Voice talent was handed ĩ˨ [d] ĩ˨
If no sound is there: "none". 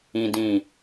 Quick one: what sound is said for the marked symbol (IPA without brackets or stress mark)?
d